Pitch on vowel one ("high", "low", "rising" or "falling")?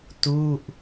falling